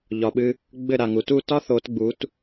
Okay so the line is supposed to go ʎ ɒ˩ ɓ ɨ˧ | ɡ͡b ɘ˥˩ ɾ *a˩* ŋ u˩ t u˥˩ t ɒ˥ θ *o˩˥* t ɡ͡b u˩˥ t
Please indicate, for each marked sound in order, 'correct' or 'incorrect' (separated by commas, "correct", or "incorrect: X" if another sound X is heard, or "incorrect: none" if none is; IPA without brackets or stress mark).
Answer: correct, correct